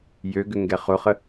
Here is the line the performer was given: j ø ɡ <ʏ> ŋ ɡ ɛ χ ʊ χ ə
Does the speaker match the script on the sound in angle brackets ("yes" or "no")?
yes